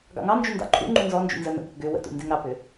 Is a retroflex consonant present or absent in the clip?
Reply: absent